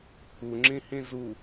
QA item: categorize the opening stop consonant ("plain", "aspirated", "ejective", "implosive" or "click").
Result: plain